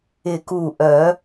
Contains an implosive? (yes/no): no